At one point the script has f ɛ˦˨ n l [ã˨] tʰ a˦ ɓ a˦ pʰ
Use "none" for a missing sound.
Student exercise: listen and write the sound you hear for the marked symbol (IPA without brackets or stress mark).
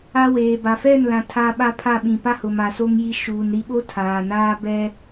ã˨